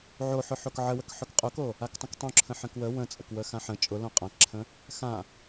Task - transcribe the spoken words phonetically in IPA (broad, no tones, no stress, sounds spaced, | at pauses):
ʕ o ħ ʊ ħ o k ʕ ə w ə k ħ ʊ k qʼ ʊ k o | a k tˤ ə̃ k tˤ õ ǁʰ ə̃ ħ ə̃ k w ə w ə̃ t͡sʼ ə k w ə x ã ħ ə̃ t͡ʃʼ ʊ l õ qʼ ã k ǁʰ ə̃ | x ã